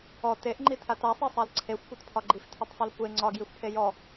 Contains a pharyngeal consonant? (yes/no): no